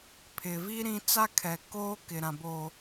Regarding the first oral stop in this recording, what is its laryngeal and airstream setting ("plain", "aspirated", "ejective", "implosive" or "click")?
aspirated